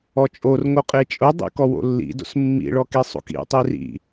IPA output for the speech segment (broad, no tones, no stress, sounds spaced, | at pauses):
ɔ t͡ʃʼ o r ŋ o qʼ e t͡ʃʼ ʊ dˤ ḭ k ɔ w o̰ lː ḭ d o̰ s mː ḭ ɭ ɔ k e sˤ o̰ k ḭ tˤ i r ḭ